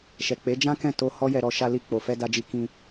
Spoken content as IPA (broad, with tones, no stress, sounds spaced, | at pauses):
ʃ ɛ˨ k͡p e˨˦ d͡ʒ ã˦ k ɛ̃˦˨ t o˧ h ɔ˦ j ɛ˧ ɾ ɔ˧ ʃ a˧ l i˧ k͡p o˨ f ɛ˧ d a˧ d͡ʒ i˧ k ĩ˧